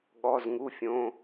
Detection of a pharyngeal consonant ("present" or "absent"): absent